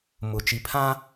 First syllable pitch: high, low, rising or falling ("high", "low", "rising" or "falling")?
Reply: low